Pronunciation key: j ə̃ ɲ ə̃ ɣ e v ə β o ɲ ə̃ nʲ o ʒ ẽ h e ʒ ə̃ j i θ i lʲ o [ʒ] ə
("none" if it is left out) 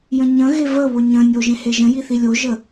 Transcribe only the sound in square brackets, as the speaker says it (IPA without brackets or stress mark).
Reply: ʒ